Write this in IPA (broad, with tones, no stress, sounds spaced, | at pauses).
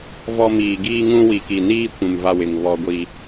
v ɔ˦ m iː˨ ɡ iː˦ ŋ ũ˦ w i˨ k i˨ n iː˦ kʷ ũ˨ m v a˦ w ɪ˨ ŋ β ɔ˦ ɡʷ i˦